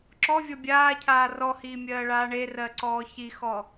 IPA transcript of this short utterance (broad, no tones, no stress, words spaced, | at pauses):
ǁɔvʲɔ bʲaːcʰaː rɔhiːmʲɜːɭaː ɳerɜǀɔː çixɔ